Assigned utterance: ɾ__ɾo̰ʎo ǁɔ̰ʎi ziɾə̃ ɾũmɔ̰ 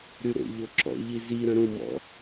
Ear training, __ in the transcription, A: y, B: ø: A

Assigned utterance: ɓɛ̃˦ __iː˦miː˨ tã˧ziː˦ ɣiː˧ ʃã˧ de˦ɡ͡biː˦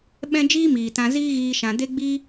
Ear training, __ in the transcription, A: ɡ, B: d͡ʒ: B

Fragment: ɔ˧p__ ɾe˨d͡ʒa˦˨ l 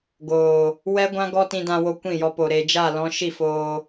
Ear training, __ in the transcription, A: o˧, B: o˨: B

